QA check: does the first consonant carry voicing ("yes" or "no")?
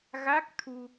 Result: yes